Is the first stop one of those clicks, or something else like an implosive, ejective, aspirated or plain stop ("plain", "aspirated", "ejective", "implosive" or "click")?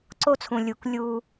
click